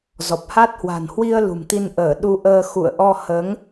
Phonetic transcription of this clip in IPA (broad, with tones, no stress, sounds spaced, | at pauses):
z ɔ˨˩ p̚ h a˦˥ t̚ h w a̤˨˩ n h w i˧ ə̯ l ṳ˨˩ m t̪ i˧ n ʔ əː˧˩ ɗ u˧ ʔ əː˧ x ṵ˧˨ ə̯ ʔ ɔ˧ h əː˨˦ ŋ